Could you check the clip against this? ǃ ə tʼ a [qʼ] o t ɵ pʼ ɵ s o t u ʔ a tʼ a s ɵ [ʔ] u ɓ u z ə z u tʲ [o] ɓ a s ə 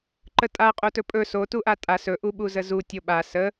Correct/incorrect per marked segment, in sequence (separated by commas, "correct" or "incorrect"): correct, correct, correct